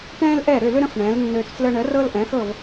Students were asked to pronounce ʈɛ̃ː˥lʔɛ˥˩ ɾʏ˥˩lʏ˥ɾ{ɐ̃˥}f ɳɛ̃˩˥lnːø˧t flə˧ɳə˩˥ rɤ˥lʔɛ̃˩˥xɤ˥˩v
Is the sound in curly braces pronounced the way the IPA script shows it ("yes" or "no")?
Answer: no